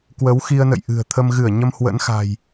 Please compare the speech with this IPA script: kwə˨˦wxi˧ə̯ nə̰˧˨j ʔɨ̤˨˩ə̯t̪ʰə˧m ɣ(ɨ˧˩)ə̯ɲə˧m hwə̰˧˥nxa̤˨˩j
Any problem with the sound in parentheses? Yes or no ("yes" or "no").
no